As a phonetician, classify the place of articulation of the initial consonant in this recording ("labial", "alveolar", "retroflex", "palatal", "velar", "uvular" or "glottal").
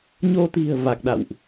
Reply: palatal